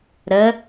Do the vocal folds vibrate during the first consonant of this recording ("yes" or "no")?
yes